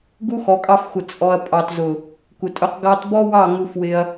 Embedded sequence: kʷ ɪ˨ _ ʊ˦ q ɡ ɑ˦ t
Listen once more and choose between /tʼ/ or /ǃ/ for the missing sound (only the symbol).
tʼ